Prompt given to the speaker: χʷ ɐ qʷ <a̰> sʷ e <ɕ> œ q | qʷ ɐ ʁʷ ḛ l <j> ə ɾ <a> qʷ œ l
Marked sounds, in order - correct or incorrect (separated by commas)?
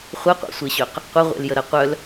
correct, correct, correct, incorrect